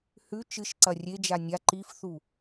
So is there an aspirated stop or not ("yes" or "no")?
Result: no